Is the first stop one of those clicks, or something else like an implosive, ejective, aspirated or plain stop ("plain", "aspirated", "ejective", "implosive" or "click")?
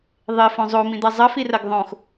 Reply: plain